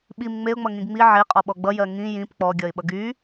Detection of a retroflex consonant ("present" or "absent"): absent